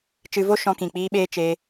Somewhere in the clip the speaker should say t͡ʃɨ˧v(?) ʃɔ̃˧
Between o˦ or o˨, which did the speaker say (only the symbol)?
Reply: o˦